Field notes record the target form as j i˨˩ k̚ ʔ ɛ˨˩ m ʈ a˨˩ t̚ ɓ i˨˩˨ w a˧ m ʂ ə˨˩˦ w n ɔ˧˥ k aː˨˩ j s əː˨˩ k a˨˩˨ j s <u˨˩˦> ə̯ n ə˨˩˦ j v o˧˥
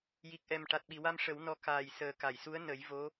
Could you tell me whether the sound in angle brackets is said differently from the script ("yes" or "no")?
yes